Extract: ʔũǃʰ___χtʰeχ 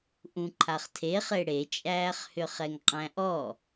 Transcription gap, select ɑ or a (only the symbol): a